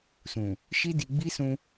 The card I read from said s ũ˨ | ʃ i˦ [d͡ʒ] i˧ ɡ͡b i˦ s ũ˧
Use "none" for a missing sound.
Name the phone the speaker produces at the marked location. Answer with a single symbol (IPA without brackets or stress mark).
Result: d